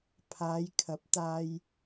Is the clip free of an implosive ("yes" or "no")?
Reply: yes